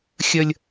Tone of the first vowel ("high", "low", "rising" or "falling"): high